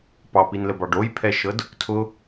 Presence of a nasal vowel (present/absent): absent